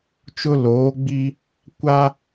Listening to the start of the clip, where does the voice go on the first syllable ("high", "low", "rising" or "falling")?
high